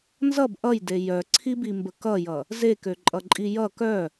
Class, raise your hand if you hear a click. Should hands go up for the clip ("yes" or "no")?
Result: yes